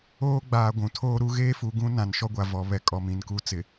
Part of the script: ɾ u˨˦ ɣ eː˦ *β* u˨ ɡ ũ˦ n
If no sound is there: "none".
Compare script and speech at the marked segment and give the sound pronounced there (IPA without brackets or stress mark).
f